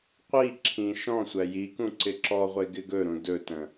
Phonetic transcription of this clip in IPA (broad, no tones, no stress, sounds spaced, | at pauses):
qʷ i ǁʰ ĩ ʃ ɔ̃ sʷ æ j i k ũ ǀ ɪ ǁ ɔ ʁʷ e ɡ ɪ ɡ ɵ ɾ ũ d ɵ t ə̃